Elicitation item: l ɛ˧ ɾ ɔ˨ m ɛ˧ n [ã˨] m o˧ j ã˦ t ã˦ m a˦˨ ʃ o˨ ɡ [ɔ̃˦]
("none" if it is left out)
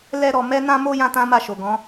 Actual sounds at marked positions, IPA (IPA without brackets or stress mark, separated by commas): ã˧, ɔ̃˨˦